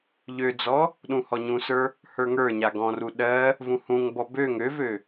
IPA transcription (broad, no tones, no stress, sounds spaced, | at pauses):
ʎ ø d͡z ɔ | ɗ ũ h ɔ ɲ ũ s ə˞ | h ə˞ ŋ ə˞ ɲ a ɡ ɔ̃ r u ɗ ɜ | v ũ h ũ ŋ b ɔ b ø ŋ ø v ø